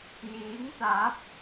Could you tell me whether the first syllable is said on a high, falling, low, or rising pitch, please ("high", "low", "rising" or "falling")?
rising